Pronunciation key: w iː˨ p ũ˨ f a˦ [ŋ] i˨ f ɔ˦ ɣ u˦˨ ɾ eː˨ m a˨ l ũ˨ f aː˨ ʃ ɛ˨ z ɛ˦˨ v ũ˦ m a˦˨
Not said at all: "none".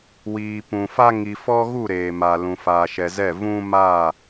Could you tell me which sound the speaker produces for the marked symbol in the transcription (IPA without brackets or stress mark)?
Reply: ŋ